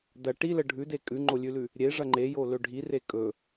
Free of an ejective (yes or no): no